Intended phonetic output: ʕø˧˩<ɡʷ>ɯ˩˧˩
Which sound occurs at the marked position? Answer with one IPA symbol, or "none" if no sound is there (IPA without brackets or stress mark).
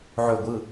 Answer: ɡʷ